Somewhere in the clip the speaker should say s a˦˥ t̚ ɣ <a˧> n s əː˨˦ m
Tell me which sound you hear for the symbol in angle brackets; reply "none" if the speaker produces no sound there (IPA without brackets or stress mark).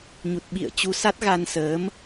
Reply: a˧